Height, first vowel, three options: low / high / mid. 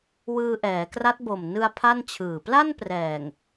high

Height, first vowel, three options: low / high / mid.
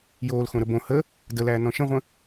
mid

